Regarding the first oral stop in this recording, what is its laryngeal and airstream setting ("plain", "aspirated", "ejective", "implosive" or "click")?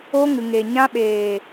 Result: implosive